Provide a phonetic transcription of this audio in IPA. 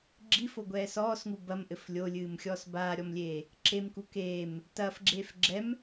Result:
ɡ͡ǁ i f o ɡʷ ɛː s ɔː s ŋ u b ɐ m ʔ ɘ f lʲ o lʲ ɨː m xʲ ɔː s b aː ɾʲ ɔ m lʲ eː | ǁ e m k u k eː m | t ɐː f ɡ͡ǁ eː f ɡ͡ǁ ɛ m

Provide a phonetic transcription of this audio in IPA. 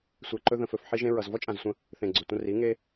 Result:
sʷ e˧ ǃ ɵ˧ ð ə̃˨ f ɵ˨ f ħ i˧ ʒ ẽ˧ ɹ ʌ˨ z v ɔ˦ t͡ʃʼ ã˨ z sʷ ə̃˧ | θ ẽ˨ ɡ͡ǀ ɵ˨ tʷ ə̃˧ r i˨˦ ŋ e˦

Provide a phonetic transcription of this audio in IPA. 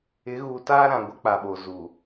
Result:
ɪ˨˦ ɣ uː˨ t aː˦ ɾ ã˨ ɡʷ ɪ˦ k͡p a˨ ɓ o˨ z u˨

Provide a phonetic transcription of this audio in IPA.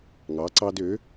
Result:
ŋ ɑ˨˥ ǀ ɑ˦ d ø˨˥

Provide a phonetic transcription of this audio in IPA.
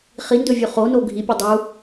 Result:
χ i n d ɵ vʲ u χ o n o ɡʱ i pʲ ɵ dˤ u

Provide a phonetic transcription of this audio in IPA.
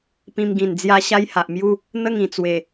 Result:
p ĩ˧ m ɡ ĩ˨˩ n d͡z j a˦ ɕ a˦ j h a˨ ʔ m j u˥˧ | n̪ ə˥˧ ŋ ĩ˨˩ t͡s w e˨˩

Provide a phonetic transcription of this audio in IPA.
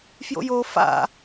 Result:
f j o̰ j o f a̰

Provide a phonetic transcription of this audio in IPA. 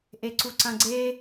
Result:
ʔ e ǀ u ǀ ɐ̃ ɡ͡ǀ e

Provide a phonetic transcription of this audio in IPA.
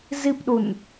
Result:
z i p ɗ u n

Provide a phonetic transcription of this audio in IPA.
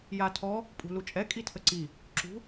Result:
j a tʰ ɔ | pʼ ṳ l u t͡ʃʼ ɛ kʼ i tʰ ə ǀ i | ǁ ṳ

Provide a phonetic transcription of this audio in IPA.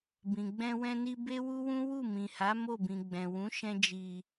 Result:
b ĩ˨ ɡ͡b ɛ̃˧ w ɛ̃˧ n i˧ b e˦ w u˦ w ũ˦ w u˦˨ m ĩ˨ h a˨˦ m o˦˨ b ĩ˨ ɡ͡b ɛ̃˨ w ũ˨˦ ʃ ɛ̃˧ d͡ʒ i˨

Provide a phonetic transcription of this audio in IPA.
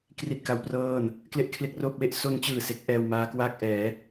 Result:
k r i˥˩ t̚ k a˦˥ w p r ɤː˥˩ n | k l e˥˩ ʔ kʰ l e˥˩ k̚ r oː˥˩ p̚ w e˥˩ ʔ s o˧ n t͡ɕ ɯː˨˩ s e˦˥ k̚ ʔ ɛː˧ w m aː˦˥ k w aː˥˩ k̚ ʔ ɛː˩˦

